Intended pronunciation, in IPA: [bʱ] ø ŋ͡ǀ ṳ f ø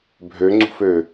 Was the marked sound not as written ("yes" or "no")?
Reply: no